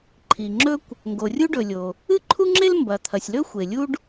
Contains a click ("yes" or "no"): yes